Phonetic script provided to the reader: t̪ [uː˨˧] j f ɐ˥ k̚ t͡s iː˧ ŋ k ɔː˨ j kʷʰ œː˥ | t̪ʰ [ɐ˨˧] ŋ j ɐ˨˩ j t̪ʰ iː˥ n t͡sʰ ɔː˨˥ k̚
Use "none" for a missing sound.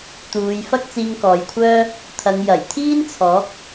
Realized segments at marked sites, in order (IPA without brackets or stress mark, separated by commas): uː˨˧, ɐ˨˧